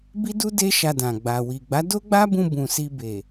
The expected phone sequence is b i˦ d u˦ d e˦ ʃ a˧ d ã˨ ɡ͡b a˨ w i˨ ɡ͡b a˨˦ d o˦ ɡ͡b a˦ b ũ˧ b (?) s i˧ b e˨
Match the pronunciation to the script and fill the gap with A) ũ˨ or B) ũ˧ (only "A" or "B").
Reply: A